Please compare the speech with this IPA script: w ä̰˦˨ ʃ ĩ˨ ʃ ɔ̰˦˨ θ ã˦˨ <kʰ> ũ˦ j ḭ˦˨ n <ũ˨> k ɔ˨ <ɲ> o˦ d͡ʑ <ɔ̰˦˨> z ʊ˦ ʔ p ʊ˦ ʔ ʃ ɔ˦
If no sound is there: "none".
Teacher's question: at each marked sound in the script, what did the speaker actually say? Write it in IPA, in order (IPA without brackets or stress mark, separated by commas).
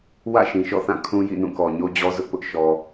kʰ, ũ˦˨, ɲ, ɔ˦